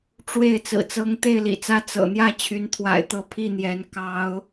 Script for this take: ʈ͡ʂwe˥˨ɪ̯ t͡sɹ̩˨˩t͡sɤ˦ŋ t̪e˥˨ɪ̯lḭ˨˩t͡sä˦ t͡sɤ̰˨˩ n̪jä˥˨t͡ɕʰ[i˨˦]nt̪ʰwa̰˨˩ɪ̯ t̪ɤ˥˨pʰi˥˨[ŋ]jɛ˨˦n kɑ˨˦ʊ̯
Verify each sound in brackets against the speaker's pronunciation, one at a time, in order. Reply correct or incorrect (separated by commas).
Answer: incorrect, incorrect